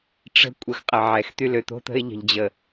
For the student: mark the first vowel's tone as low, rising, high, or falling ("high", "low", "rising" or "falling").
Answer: high